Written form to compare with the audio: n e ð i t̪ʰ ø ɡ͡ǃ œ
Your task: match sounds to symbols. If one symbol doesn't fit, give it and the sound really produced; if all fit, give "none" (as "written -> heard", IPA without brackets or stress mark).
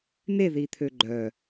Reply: none